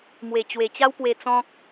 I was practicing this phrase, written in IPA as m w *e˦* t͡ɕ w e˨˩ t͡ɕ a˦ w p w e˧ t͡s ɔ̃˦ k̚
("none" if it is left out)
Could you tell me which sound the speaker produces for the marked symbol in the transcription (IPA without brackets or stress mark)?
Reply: e˨˩